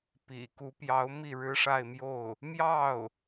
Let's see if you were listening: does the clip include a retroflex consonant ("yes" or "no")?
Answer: yes